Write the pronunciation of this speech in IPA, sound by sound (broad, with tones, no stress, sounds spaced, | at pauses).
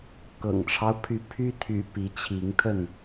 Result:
k ɤ̰˨˩ ŋ ʈ͡ʂʰ ɑ˦ ʊ̯ pʰ y˨˦ pʰ y˦ t̪ʰ y̰˨˩ p i˨˦ t͡ɕʰ i˨˦ ŋ t̪ʰ ə˥˨ n